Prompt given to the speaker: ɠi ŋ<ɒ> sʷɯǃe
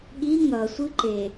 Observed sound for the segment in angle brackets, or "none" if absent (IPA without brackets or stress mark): ʌ